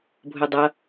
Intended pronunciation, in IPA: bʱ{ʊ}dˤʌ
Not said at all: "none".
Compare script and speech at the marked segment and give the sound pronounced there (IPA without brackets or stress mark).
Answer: ʊ